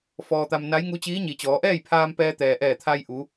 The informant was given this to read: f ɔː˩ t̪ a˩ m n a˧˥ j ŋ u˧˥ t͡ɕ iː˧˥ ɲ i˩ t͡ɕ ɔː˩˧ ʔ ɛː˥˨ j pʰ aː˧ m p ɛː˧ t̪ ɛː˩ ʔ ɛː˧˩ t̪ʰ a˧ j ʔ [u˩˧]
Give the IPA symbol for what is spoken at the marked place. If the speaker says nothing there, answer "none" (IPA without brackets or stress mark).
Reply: u˩˧